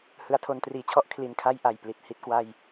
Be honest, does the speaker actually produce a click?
no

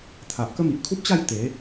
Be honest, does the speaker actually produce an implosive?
no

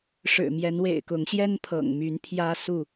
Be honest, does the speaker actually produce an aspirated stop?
yes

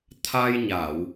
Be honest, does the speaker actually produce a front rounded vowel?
no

